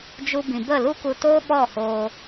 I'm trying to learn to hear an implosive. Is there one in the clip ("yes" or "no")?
yes